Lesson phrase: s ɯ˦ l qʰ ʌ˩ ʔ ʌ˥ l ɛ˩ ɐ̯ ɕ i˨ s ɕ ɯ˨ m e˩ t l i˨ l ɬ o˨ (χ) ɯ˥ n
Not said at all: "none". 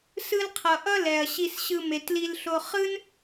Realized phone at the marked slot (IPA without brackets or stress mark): χ